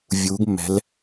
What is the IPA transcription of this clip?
vʲ uː˩˧ ɡ mː ɛ̤˩˧ l

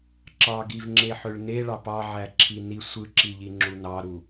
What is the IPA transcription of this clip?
ǁ ɑ ɡ i v ŋ͡ǁ e ħ ø ɭ n e ɭ ɑ p ɑ ʕ æ ǁʰ i n i sʷ ɯ ǁ i ʎ i ŋ͡ǁ u n ɑ ɾ u

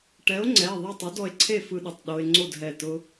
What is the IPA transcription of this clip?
ʈ ɛ˨˥ o̯ ŋ͡ǀ ɛ˩˧˩ e̯ ðˤ ɛ˥˨ tˤ ʊ˨˥ d ɔ˧ e̯ ǀʰ e˥˨ f ɯ˧ ɗ ʊ˩˧˩ tˤ ɗ o˧ e̯ ŋ͡ǀ o˥˨ d ɦ ɛ˧˩ t ʊ˧

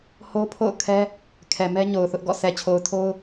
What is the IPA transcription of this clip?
h o˦ pʰ o̰˦˨ ʊ̯ kʰ ɛ˦ | kʰ ɛ˨ m ɛ˦ ɲ o˨ ʊ̯ θ ʊ˦ ʔ ɡ ɔ̰˦˨ sʰ ɛ˨ t͡ɕʰ o˨ ʊ̯ tʰ o˦ ʊ̯

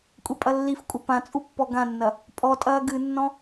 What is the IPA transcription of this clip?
kʷʼ e pʼ ɐ lː i f kʷʼ ɐ p ã t͡sʼ u pː ɔ ɡ ã nː ɐ | pʼ ɔ tʼ ɐː ɡ ɨ nː ɔ̃

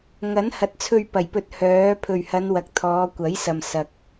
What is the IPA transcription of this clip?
ŋ ɐ˨˥ n h ɐ˨˥ t̚ t͡sʰ ɵ˧ ɥ p ɐ˨˩ j p ɵ˨˥ t̚ h œː˨˥ pʰ ɵ˨˩ ɥ h ɐ˨˧ n w ɐ˨ k̚ t̪ʰ ɔː˨˧ kʷ ɐ˨˥ j s ɐ˨ m s ɐ˨ k̚

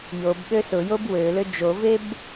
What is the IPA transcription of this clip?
j o b ɠ ø s ʊ j o b w ø l ø d͡ʒ o v e b

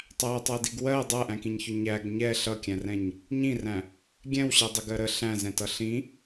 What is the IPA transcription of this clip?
tˤ æ tˤ ɜ d i ɡ w ɜ dˤ æ ʔ æ̃ k ĩ ɲ ç ʊ ɲ æ ɡ ɲ ɛ ɬ ʌ kʲ æ̃ r ɛ̃ ɲ | ɲ ĩ r æ̃ | ɡʲ ɛ̃ w ɕ ɛ dˤ ə ɡ ɜ ɾ ə ɬ æ̃ z ɛ̃ t ʌ ɬ ĩ

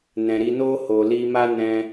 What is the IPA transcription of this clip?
n ɛ̃˨ ɾ i˧ n oː˦ h o˨ l i˧ m a˦ n ɛ̃˧

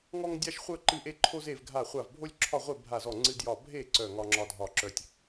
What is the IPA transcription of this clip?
ŋ ɔ˥ ŋ dʲ a˥ ʃ χʷ œ˥ ǃ ɨ˥˧ ʔ e˥ ǃʰ o˥ z e˥˧ v ɡʱ a˥˧ χʷ a˥˧ v bʱ o˥ lʲ ǁʰ ɒ˥˧ ʁʷ e˥˧ bʱ a˥˧ z ɔ˥˧ ŋ͡ǀ ɨ˥ d j ɒ˥˧ bʱ e˥˧ ǀ œ˥˧ ŋ ɒ˥ ŋ͡ǁ ɒ˥ dʱ ɒ˥˧ ǁ œ˥ tʲ

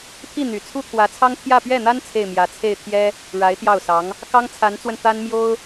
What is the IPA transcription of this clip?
t̪ʰ i˥˩ n̪ y˨˩ t͡sʰ u˥ t̪ʰ w ä˧˥ t͡sʰ ɑ˥ ŋ t̪ʰ j ä˥˧ p ɥ ɛ˥˩ n̪ a˥ n t͡sʰ e˥˩ ɪ̯ m j ä˧˥ t͡sʰ e˥˩ ɪ̯ t̪ʰ j ɛ˥ | ɻ a˧˥ ɪ̯ t̪ j ɑ˥˩ ʊ̯ s ɑ˧˥ ŋ | k ɑ˥ ŋ t͡sʰ a˧˥ n t͡s w ə˧ n t̪ a˥ n m j o˥ ʊ̯

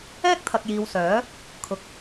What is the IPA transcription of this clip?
ɛː˥ k̚ t̪ʰ ɐ˨ k̚ j iː˨ w s œː˨˥ | kʰ ʊ˨ k̚

